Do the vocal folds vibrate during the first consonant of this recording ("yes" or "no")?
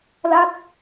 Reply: yes